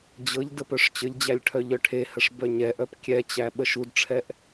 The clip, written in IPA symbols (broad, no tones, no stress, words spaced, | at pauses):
d͡ʑɤʎ dəpœʂt͡ɕəʎd͡ʑælʲ ʈʰœʎœʈʰehəʂ bœɲɛʔœp kʲɛt͡ɕæ ɓəʃudʈ͡ʂʰɛʔ